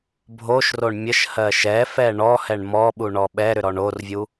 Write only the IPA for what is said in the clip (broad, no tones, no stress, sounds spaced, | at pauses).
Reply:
bʱ o ʃ r o ɳ mʲ ə ʃ h ɜ ʃ ɛ f ɛ ɳ ɔ h ɛ ɳ m ɔ ɓ u ɳ ɔ ɓ ɛ ɾ ʏ ɾ ɔ ɳ o r vʲ u